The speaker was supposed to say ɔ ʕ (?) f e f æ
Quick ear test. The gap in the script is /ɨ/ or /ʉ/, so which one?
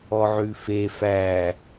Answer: ʉ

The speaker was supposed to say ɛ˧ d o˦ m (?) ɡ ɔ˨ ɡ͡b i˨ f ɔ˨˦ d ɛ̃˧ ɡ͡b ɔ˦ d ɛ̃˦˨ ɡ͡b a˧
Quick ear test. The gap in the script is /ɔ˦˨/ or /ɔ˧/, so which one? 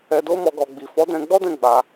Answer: ɔ˧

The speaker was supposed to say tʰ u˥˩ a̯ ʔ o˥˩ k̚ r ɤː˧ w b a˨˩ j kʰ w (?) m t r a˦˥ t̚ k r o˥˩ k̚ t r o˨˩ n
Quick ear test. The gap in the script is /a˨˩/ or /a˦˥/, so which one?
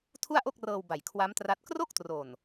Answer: a˦˥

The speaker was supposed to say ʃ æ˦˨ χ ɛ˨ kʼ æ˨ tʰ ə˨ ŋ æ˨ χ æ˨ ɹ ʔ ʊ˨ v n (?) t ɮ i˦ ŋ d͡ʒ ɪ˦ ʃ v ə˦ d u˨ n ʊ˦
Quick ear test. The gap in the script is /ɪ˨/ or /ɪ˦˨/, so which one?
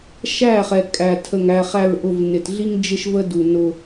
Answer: ɪ˨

